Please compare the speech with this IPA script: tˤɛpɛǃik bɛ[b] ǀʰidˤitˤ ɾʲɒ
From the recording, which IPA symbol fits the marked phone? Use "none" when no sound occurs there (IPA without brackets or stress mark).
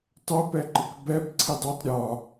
b